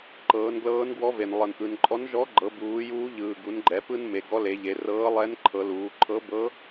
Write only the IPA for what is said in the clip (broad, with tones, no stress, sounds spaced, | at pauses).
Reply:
ǃ ɤː˩˧ n ɡ l ɤː˧˥ n ɡ w ɔ˧˥ v e˩ n lˠ ɤ˩ n ʔ ɯ˩ n ǃʼ ɔ˧˥ n ʒ ɔ˧˥ ɡ͡ǃ ɤ˩˧ b uː˩˧ j uː˧˥ ʎ ɯː˩ ɡ u˩˧ n ɡ͡ǃ ɛ˩˧ p ɯ˥ n m e˩˧ ɡ ɔ˧˥ l e˩˧ ʎ e˩˧ r ɤː˧˥ lˠ ɛ˧˥ n ǃʰ ɤ˩˧ l uː˩˧ ǃʰ ɤ˧˥ b ɤ˧˥